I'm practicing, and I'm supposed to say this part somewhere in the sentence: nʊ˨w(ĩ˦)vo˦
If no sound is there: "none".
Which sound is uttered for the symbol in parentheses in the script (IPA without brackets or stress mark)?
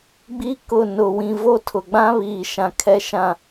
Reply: ĩ˨